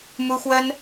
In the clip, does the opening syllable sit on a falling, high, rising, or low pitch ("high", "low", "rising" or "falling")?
high